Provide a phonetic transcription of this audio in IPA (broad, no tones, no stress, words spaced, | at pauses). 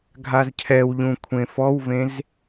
ɡʱazcʰɛwʎũ kʷʰẽfɔwvẽz